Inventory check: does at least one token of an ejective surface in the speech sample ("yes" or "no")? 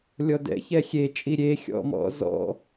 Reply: yes